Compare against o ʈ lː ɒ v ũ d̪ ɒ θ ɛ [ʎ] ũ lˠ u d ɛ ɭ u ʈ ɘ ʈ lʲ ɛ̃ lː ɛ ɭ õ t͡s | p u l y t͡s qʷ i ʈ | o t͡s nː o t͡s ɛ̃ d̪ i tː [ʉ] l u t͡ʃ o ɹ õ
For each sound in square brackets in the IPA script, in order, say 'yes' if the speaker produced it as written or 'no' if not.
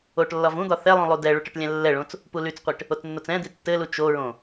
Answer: no, no

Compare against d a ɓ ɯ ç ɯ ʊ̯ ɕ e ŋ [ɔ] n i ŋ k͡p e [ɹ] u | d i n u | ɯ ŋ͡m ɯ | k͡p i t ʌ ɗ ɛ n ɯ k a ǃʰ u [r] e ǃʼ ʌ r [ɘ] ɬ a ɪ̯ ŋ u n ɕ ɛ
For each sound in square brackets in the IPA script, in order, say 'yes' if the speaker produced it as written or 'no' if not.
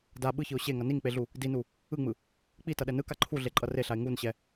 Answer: no, no, no, no

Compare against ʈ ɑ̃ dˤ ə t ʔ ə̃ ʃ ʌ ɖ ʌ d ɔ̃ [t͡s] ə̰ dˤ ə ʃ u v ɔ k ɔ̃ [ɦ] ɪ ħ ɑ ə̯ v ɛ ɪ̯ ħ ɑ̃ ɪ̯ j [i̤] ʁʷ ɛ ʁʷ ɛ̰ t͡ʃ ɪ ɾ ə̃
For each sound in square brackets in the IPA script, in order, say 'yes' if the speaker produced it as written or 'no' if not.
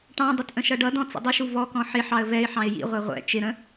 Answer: yes, no, no

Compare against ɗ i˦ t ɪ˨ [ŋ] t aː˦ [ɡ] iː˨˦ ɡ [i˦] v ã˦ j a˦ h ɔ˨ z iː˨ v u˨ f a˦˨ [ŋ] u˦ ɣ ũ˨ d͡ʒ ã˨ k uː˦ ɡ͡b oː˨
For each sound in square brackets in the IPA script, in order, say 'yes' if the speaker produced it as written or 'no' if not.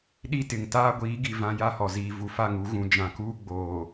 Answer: yes, no, no, yes

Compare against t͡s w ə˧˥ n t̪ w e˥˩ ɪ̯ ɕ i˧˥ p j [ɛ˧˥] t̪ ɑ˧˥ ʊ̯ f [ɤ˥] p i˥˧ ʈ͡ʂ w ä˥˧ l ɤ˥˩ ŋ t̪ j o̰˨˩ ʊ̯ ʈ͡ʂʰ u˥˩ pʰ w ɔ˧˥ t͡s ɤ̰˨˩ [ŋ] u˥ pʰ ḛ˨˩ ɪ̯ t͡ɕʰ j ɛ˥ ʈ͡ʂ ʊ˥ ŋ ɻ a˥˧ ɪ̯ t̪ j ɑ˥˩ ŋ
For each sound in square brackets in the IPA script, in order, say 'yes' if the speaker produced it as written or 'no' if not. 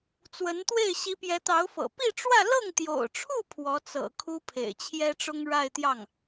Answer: yes, no, no

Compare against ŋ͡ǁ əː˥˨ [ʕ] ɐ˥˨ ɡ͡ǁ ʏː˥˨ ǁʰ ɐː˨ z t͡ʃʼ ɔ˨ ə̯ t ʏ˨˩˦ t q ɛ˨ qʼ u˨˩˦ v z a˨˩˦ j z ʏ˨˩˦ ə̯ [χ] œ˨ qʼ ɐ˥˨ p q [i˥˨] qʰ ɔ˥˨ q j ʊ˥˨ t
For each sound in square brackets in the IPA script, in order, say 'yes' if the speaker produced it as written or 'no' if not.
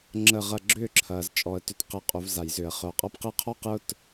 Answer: no, yes, yes

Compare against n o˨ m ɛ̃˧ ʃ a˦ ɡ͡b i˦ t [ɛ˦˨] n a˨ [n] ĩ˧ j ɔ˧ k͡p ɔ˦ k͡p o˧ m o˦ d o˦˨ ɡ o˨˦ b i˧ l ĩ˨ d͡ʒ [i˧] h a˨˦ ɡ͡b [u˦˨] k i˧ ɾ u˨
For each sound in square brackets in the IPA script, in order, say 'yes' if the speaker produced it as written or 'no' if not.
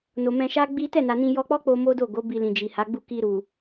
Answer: yes, yes, no, yes

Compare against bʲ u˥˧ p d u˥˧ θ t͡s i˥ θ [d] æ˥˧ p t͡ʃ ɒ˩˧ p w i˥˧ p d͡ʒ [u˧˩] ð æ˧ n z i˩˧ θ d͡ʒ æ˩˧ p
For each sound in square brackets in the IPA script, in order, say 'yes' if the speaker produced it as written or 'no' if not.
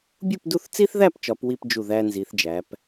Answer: no, yes

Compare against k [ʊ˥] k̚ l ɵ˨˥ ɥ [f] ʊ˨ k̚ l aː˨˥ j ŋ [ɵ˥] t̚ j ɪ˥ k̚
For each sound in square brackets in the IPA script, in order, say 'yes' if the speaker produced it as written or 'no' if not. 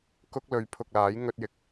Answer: yes, no, yes

